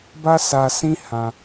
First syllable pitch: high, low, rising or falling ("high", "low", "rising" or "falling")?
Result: high